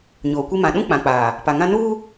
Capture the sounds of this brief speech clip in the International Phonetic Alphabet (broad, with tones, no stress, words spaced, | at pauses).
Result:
ɲoː˨kʷi˦ mã˨ɗũ˦ k͡pã˨k͡paː˨ | pa˨ŋã˦ nuː˦